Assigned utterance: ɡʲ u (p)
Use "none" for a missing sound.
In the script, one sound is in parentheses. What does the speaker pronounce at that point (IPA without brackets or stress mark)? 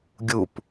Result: p